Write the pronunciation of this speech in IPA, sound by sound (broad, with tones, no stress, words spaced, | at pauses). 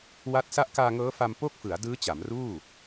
wa˦˥t̚ sa˦˥ʔkaː˧ŋɤː˦˥fa˧m po˥˩k̚fɯ˩˦a̯ dɯː˦˥t͡ɕa˩˦mruː˥˩